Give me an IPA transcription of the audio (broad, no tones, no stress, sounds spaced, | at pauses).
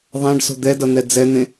ðˤ ã ɖ s o̤ d̪ ɛ d ʌ n̪ ɛ d͡z ɛ n̪ ẽ